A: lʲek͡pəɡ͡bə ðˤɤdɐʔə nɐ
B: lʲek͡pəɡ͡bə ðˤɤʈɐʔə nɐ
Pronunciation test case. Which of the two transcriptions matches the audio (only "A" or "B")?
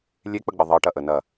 B